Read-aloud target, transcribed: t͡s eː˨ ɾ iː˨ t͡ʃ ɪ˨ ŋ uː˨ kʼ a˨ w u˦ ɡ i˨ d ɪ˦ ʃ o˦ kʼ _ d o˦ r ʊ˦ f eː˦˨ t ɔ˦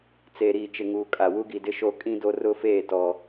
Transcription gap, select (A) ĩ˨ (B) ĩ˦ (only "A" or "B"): B